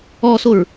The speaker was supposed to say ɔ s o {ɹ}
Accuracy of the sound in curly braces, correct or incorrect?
correct